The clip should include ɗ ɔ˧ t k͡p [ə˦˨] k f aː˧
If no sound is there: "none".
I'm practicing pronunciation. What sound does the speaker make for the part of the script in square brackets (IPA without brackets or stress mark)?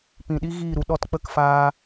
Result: ə˦˨